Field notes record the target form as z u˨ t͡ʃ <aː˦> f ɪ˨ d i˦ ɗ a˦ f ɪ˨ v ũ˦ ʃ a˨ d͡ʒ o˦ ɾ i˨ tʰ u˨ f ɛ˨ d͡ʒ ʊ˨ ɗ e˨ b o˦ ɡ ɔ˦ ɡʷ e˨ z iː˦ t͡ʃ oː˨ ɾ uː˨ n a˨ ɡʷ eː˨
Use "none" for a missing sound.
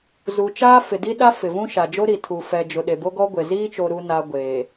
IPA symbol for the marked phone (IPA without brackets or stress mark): aː˦